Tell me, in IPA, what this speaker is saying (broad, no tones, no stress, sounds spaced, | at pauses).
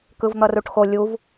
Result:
k ɯ v n̪ ʌ r u ʈ x o lʲ u v